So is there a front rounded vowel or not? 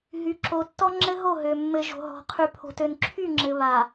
yes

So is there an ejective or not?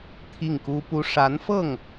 no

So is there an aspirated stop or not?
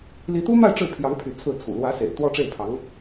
yes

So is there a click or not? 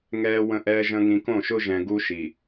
no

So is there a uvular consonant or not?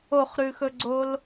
yes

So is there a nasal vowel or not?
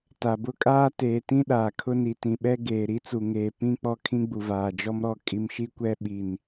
yes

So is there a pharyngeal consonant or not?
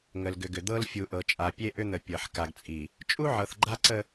yes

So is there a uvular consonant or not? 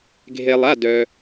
no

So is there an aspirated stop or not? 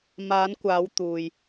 no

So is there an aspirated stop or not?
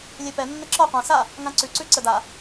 no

